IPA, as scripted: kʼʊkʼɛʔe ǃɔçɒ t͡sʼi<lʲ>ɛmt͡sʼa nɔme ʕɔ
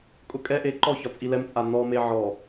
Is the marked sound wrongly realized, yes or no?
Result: yes